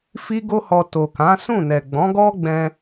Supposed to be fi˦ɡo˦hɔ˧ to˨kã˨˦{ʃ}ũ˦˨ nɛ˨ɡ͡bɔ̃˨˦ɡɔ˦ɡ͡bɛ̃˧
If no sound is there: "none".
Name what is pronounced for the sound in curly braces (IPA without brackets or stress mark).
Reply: s